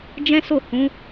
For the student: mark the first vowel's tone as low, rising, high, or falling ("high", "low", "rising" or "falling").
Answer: high